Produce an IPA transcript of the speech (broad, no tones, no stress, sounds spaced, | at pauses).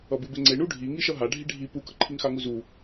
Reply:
ʌ b ɯ b e ŋ͡ǀ e ɳ u ɖʱ i ŋ i ʃ ʌ ɦ a ɖʱ i ɖʱ i p u k ʌ ǃʰ i ŋ x a ŋ u z u